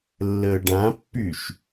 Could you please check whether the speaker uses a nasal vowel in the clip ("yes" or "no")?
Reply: yes